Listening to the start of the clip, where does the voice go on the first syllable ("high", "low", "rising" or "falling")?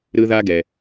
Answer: high